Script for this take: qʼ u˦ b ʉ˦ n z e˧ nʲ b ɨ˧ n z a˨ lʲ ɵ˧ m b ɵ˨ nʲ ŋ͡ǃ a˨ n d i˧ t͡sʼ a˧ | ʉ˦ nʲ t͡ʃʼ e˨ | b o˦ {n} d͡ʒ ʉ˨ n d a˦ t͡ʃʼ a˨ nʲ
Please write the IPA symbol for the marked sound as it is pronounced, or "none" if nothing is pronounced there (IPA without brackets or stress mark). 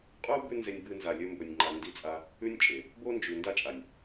n